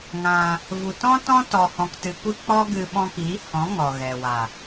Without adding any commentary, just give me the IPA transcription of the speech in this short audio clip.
ŋ ã˧ | v u˨ t ɔ̃˦ t ɔ̃˦ t ɔ˨ h ɔ̃˨ k t ɨ˨ kʷ ɨ˧ k͡p ɔ˦ ɡ ɨ˧ ɓ ɔ̃˧ k iː˨˦ h ɔ̃˨˦ ŋ ɔ˨ ɣ ɛ˨ w a˨

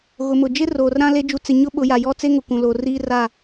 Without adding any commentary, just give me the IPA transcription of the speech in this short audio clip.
ɣ ʊ˨ m ʊ˨ d͡ʒ ɪ˦ r oː˨ r ɾ ã˦ l e˦ d͡ʒ u˨ t͡s ɪ˨ ɲ ʊ˦ ɓ ʊ˨˦ j a˨ j ɔ˦ t͡s e˦ ŋ ʊ˨ kʷ ũ˨ l o˨ r iː˦ r a˦˨

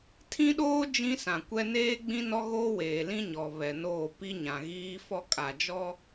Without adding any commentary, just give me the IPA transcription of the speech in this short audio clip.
tʰ ĩ˦ ɗ oː˦ d͡ʒ ĩ˦ s ã˨ kʷ ɛ˦ n eː˦ ɡ͡b ĩ˦ n ɔ˦ ɣ oː˦ w eː˨ l ĩ˦ ɲ ɔ˨ β ɛ˨ n oː˦˨ p i˦ ɲ ã˨ ɣ iː˦ f ɔ˦ kʼ a˨ d͡ʒ ɔ˦

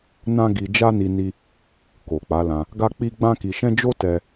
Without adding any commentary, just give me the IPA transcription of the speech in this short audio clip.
n ã˦ ɡ i˧ d͡ʒ a˦ n i˧ n i˧ | k o˨ k͡p a˨˦ l ã˧ | ɡ a˦ k͡p i˦ ɡ͡b ã˦ k i˧ ʃ ɛ̃˦ d͡ʒ o˦ t ɛ˦

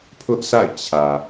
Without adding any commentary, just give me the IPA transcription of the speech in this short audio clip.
pʰ ʊ˦ ʔ sʰ a̰˦˨ ɪ̯ t͡ɕʰ ä˨

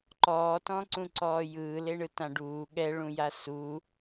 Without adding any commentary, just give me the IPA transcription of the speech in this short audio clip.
ǃ ɔː t ɔ̃ ǀ ũ ǀ ɔː j ɯː l e ɳ ɯ t ã ɖ uː ɠ ɛ ɭ ũ j a s u

